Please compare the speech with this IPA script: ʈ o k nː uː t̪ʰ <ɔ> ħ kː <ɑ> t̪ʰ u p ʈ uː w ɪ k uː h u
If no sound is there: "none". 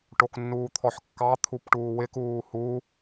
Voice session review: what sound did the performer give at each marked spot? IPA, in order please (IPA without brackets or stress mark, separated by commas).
ɔ, ɑ